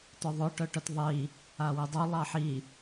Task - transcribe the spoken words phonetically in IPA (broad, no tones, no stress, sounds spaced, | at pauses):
t œ ðˤ ʊ ʈ œ ʈ œ t ðˤ i | a w i dˤ u lˠ ɑ ħ i